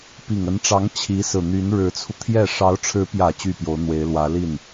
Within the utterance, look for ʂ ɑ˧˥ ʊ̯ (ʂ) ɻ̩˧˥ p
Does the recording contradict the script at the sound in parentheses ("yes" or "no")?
yes